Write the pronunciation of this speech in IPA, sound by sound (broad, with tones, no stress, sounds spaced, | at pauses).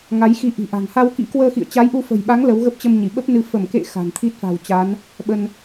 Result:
ŋ a˨˦ j x i˧ ʔ i̤˨˩ ʔ a̤˨˩ ŋ h a˧ w k ḭ˧˥ k w əː˧ x ḭ˧˨ ə̯ t͡ɕ a˨˦ j ʔ u˧ f ə̤˨˩ j ɓ a˨˦ ŋ l ə˨˦ w ɣ ə˦˥ p̚ t͡ɕ ə˧ m ɲ i˧˩ ɓ ə˦˥ p̚ n ɨ˧ f ə˧˩ m k ḛ˧˨ x a̤˨˩ n t̪ʰ i˦˥ t̚ f a̤˨˩ w t͡ɕ a˨˦ n | ɓ ə˧ n